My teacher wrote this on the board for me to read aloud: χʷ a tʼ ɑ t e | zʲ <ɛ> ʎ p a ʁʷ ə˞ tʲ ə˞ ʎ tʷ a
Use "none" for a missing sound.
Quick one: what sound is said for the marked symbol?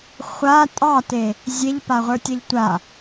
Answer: e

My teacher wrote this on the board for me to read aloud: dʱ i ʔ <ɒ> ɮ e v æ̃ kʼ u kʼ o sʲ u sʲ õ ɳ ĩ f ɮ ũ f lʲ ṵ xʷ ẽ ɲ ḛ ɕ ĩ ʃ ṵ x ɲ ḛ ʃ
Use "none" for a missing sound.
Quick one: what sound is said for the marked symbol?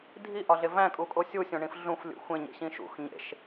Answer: ɒ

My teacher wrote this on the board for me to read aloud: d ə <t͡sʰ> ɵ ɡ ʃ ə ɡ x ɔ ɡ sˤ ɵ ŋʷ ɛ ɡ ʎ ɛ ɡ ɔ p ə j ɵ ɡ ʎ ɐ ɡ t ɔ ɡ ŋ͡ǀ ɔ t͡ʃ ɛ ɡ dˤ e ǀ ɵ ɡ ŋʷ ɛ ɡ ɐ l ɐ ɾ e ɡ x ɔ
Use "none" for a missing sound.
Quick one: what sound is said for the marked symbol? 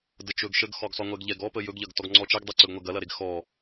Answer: t͡ʃ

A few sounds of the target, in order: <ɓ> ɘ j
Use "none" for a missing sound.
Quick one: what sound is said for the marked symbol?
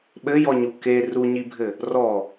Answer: ɓ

